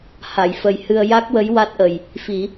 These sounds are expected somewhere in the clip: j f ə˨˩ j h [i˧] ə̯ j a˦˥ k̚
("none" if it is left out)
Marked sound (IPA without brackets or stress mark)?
ɨ˧